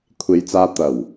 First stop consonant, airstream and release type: aspirated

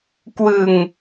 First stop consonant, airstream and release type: plain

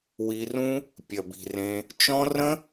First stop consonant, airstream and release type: plain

